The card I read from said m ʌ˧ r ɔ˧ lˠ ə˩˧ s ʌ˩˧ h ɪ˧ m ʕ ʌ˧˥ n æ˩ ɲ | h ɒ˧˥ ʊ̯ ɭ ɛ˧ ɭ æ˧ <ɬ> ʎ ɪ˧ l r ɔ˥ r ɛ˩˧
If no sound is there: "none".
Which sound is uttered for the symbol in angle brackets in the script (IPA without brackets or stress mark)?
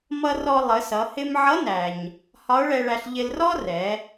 ɬ